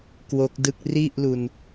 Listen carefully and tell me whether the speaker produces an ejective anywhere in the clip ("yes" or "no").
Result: no